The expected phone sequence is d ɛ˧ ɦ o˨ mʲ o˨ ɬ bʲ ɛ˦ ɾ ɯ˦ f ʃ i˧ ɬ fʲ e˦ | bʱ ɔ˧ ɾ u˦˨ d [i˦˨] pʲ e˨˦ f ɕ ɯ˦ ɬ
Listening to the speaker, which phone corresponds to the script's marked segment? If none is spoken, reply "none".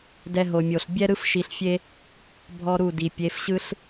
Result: i˨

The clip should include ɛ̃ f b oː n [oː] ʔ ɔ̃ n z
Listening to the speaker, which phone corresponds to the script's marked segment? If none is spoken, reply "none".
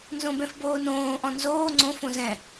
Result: õː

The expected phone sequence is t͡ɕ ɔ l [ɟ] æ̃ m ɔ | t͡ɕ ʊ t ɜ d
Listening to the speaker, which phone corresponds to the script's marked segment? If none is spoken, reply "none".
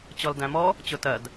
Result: d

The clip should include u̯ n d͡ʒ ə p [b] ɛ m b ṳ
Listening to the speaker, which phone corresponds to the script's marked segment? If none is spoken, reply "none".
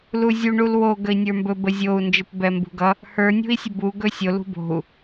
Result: b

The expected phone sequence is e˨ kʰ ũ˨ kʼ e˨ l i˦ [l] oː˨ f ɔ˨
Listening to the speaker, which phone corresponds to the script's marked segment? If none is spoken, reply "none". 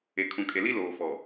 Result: l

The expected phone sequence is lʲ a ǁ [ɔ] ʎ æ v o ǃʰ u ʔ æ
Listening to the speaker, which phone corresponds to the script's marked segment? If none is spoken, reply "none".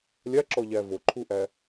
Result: ɔ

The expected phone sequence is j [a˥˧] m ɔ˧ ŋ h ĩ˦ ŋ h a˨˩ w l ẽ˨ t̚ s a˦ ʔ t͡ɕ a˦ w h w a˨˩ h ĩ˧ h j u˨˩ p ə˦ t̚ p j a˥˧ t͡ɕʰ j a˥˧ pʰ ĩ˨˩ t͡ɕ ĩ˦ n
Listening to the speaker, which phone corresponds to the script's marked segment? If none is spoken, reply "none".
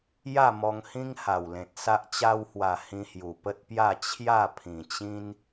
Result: a˥˧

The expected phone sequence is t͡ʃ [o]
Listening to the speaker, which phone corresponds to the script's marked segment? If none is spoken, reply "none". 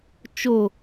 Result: o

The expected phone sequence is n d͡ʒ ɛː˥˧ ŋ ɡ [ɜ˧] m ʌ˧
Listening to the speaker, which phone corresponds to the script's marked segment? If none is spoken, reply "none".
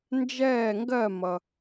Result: ɜ˥˧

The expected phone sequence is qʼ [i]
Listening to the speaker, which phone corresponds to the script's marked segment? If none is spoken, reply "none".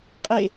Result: e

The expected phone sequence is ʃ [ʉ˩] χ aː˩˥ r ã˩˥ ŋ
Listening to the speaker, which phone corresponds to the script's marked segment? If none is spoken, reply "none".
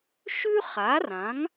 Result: ʉ˥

